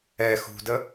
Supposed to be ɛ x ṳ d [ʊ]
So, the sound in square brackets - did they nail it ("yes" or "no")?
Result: no